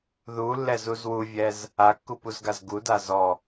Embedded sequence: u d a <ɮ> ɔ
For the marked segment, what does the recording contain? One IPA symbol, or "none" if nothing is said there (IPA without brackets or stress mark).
z